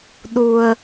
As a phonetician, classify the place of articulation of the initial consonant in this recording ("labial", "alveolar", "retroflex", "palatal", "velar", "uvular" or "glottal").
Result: alveolar